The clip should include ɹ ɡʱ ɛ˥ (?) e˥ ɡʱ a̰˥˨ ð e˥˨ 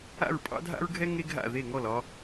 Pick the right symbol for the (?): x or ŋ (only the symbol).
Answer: ŋ